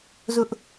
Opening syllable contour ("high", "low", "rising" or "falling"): high